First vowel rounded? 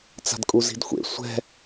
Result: no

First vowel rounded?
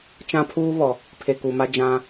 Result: no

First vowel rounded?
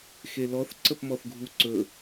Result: no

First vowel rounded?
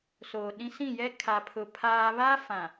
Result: yes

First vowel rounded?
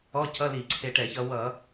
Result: yes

